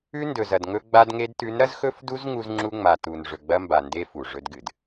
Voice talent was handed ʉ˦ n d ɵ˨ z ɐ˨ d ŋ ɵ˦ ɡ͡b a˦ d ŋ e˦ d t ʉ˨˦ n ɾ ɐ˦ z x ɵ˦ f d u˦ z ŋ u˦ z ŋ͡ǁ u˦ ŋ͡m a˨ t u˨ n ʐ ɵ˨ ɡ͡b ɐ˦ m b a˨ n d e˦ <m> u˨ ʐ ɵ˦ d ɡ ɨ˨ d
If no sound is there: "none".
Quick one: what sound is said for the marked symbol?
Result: f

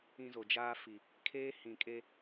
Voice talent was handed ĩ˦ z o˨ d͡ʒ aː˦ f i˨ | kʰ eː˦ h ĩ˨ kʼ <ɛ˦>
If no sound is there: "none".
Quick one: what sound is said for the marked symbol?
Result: e˦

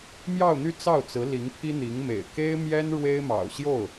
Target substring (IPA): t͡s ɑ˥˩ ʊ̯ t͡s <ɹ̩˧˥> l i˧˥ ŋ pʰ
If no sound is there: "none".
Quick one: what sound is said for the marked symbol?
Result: ɹ̩˧˥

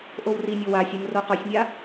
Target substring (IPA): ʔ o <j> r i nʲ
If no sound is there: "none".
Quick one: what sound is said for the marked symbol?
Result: w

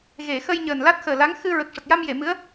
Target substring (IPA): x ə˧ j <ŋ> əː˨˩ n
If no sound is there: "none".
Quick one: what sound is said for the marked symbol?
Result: ɲ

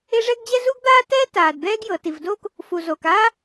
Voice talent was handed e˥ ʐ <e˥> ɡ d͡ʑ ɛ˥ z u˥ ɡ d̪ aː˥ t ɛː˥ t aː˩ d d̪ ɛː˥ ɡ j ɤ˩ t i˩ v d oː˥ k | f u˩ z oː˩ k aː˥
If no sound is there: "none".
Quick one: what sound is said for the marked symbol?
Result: ɛ˥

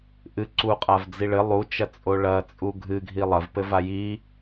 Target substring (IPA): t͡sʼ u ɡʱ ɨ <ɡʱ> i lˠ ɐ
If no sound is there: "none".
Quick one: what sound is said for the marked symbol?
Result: ɡʱ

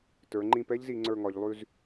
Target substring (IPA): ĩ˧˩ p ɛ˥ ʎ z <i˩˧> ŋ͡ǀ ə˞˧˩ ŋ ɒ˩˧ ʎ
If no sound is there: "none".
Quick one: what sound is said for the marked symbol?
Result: i˩˧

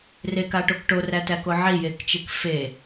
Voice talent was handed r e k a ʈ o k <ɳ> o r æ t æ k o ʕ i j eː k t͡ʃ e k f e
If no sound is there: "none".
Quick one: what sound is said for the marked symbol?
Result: ʈ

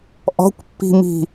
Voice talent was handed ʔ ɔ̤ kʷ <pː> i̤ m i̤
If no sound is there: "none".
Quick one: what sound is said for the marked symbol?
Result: pː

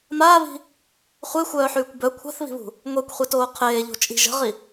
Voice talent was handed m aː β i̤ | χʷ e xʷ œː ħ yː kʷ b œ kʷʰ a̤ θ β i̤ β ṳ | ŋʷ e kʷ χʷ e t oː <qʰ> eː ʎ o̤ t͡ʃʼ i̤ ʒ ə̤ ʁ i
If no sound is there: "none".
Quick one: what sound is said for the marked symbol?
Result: qʰ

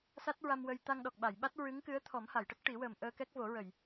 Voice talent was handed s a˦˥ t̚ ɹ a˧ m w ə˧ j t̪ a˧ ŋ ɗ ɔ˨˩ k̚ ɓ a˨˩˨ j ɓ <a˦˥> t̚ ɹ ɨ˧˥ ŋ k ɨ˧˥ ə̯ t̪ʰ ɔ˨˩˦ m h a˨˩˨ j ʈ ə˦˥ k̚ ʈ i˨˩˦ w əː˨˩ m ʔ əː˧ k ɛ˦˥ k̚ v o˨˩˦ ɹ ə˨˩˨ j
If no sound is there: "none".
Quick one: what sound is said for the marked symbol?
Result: a˦˥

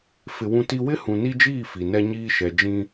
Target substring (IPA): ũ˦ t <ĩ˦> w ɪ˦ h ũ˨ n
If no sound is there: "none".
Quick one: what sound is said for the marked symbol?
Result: i˦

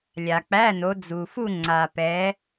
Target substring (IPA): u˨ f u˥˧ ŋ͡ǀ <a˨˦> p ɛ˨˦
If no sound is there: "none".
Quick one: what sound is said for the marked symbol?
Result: a˨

